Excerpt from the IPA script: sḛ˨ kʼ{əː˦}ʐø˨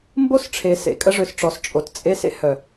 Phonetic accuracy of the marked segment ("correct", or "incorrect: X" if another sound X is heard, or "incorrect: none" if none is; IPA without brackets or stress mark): incorrect: ə˦